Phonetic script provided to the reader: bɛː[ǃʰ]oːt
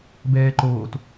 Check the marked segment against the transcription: incorrect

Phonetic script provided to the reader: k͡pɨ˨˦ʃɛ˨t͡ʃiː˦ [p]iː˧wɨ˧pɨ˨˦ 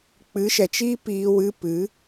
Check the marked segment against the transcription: correct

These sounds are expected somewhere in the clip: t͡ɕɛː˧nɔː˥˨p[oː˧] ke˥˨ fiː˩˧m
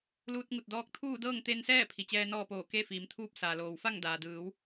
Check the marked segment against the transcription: incorrect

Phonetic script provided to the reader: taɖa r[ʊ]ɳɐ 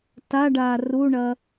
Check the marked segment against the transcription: incorrect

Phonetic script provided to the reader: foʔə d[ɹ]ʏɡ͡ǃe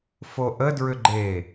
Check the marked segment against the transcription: correct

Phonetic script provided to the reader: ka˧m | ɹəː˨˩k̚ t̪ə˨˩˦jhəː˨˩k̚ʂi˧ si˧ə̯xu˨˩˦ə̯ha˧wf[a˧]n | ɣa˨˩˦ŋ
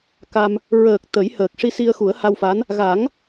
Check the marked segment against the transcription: incorrect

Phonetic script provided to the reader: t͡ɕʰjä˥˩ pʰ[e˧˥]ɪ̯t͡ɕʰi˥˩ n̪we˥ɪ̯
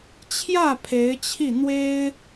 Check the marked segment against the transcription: correct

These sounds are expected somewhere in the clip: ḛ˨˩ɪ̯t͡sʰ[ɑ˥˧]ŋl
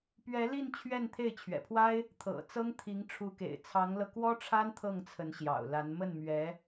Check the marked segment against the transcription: incorrect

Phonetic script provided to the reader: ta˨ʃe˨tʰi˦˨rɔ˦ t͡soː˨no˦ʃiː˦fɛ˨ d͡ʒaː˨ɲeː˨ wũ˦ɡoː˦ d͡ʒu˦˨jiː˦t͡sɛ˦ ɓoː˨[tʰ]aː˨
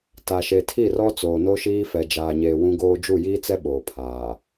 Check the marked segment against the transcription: incorrect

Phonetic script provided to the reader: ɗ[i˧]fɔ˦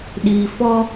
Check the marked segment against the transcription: incorrect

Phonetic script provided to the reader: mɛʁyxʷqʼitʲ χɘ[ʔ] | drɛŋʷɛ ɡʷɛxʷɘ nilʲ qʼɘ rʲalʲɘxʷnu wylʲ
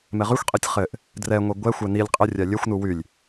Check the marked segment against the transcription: correct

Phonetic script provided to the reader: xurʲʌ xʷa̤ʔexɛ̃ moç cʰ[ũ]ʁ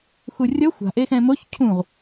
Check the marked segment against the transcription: correct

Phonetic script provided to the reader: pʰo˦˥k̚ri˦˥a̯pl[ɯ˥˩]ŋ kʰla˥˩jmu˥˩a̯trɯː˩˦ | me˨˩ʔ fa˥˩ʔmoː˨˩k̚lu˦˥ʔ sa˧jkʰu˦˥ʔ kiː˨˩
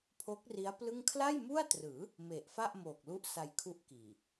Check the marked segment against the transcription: correct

